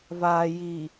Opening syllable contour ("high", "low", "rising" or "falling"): low